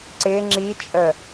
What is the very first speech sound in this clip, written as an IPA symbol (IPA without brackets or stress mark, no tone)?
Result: ǀ